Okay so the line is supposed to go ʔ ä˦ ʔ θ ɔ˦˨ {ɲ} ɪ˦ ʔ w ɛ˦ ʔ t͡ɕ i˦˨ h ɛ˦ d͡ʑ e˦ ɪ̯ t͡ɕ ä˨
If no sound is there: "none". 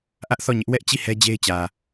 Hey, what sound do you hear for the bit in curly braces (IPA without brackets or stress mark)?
ɲ